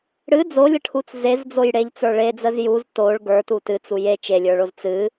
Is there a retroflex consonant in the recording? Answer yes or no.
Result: yes